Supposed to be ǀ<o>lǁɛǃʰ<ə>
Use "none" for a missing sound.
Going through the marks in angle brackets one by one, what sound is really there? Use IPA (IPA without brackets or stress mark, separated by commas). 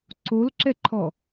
o, ɔ